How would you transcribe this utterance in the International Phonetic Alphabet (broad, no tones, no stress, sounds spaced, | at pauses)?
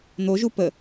n̪ o ʒ u p ə